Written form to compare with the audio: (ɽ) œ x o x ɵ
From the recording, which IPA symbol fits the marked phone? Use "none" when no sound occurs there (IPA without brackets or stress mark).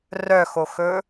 r